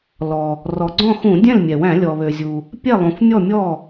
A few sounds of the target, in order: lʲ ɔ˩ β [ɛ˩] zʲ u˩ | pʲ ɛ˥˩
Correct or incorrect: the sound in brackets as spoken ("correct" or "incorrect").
incorrect